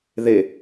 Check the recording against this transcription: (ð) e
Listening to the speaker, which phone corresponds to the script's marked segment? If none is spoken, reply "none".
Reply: ð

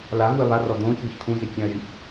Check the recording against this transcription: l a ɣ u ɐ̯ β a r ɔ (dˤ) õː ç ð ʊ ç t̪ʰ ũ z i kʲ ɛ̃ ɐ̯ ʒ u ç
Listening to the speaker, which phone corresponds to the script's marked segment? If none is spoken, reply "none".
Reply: d̪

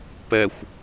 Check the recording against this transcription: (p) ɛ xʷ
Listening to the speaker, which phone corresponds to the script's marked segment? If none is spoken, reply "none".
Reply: p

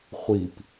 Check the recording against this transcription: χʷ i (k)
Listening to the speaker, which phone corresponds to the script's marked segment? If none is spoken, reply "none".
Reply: p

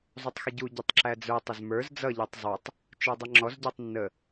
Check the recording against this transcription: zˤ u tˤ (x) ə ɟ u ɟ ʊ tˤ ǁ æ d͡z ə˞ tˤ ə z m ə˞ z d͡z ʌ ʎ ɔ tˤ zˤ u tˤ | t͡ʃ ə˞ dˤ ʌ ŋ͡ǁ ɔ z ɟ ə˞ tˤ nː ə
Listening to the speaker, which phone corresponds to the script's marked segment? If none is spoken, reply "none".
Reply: x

